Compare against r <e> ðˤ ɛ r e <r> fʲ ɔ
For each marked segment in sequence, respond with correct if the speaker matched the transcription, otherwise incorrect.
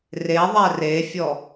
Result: correct, incorrect

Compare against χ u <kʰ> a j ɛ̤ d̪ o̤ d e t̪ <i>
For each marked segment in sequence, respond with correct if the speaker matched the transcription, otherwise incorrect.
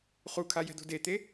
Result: correct, incorrect

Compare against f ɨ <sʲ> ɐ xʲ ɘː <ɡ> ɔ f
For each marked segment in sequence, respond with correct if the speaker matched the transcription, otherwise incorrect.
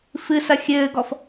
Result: incorrect, correct

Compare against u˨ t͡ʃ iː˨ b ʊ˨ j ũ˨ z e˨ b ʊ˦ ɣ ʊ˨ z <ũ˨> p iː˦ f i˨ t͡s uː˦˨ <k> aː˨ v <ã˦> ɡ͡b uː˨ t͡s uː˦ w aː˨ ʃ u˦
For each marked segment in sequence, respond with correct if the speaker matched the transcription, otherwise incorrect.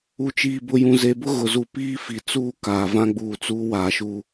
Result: incorrect, correct, correct

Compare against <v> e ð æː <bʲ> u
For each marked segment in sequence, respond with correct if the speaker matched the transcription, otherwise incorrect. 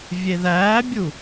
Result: incorrect, correct

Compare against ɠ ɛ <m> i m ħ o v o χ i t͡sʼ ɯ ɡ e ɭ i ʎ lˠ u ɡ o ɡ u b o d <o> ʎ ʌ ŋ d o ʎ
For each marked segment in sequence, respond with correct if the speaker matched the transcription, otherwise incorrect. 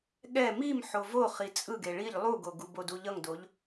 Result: correct, incorrect

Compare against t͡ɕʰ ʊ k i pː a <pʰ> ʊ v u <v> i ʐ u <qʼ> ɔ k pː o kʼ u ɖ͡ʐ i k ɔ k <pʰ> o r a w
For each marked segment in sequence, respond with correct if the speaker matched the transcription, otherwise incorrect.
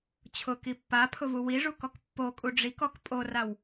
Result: correct, incorrect, incorrect, incorrect

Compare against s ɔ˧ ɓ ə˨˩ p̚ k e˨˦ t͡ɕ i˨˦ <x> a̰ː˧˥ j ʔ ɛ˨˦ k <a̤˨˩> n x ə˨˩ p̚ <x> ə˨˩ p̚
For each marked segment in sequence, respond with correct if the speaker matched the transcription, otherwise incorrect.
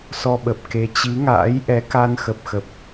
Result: incorrect, incorrect, correct

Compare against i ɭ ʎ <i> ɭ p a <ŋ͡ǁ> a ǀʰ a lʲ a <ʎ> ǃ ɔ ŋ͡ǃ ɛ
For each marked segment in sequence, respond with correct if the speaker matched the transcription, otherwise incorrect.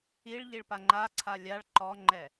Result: correct, incorrect, incorrect

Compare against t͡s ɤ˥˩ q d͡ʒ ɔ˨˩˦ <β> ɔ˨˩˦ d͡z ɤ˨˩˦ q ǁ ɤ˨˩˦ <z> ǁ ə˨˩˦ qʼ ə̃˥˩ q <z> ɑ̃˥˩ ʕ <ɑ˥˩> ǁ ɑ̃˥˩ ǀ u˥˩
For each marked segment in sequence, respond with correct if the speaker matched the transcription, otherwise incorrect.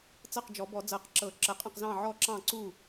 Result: incorrect, incorrect, correct, incorrect

